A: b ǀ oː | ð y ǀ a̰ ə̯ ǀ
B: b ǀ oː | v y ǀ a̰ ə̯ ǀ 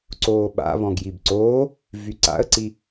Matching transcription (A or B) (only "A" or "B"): B